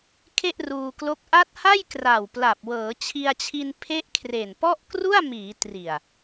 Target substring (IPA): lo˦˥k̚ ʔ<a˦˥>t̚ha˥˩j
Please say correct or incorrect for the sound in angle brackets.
correct